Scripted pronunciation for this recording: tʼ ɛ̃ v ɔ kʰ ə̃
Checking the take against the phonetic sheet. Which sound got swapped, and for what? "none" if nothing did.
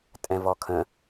none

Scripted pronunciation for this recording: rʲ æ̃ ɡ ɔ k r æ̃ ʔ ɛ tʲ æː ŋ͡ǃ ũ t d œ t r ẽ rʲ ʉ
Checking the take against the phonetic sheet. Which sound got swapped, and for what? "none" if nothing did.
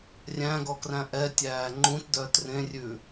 none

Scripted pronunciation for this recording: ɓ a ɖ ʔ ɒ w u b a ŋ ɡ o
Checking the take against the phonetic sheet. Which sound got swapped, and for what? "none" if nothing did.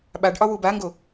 none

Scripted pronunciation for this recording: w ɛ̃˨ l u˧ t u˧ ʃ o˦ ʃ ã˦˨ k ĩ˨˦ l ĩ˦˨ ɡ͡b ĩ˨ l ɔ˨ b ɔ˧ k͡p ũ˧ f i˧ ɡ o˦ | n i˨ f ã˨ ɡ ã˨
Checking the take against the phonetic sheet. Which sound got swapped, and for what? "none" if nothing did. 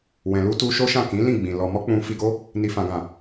b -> m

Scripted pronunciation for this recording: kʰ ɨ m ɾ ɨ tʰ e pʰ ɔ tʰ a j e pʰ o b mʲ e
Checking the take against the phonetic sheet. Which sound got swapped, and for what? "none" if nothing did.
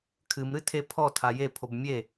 none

